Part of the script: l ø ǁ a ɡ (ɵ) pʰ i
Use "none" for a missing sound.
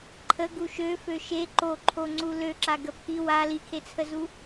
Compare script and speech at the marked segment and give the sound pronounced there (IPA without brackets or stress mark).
ə